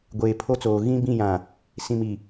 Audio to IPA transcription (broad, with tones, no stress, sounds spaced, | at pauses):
ɡʷ eː˨ pʰ o˦ t͡s oː˨ ɣ ĩ˦ b ĩ˦˨ j ã˨ | s ĩ˨ m i˨